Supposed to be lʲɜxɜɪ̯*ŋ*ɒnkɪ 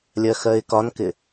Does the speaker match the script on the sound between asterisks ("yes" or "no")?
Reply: no